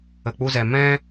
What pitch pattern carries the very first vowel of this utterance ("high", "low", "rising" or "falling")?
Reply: low